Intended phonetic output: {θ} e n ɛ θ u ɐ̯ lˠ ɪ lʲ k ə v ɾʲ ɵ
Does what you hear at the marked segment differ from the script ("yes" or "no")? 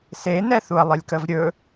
yes